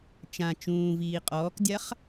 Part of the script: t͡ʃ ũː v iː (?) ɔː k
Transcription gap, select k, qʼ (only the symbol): qʼ